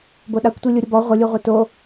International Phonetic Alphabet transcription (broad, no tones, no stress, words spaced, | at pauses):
boɗakʷtʷi lʲuɾʲʊbɔ ʁʷɪlʲuʁʷe to